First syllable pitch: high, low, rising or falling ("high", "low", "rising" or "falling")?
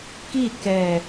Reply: falling